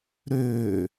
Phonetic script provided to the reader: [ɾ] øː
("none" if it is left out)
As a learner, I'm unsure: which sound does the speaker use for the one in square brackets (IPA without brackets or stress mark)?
ɾ